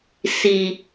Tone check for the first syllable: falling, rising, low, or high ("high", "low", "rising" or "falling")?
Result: low